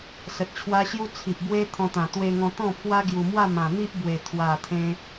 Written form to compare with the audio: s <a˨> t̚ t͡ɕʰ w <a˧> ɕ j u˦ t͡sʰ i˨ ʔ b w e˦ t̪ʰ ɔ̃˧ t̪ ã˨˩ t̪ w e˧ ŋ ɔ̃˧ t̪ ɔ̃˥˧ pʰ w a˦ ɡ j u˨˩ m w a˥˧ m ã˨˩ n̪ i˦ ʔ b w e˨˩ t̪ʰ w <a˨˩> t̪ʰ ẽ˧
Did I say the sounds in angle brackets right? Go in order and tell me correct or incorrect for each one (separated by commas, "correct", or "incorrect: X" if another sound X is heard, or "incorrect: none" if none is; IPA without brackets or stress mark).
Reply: incorrect: ə˨, incorrect: a˦, correct